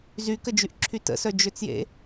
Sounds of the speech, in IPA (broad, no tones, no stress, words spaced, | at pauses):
zykəd͡ʒyʔǁʰy tə̰sœd͡ʒøt͡sjḛ